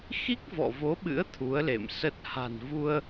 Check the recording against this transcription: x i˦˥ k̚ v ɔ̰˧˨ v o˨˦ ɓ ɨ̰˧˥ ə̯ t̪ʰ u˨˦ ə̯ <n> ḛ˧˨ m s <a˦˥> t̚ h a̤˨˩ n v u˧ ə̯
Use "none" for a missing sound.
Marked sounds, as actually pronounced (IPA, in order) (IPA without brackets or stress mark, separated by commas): l, ə˦˥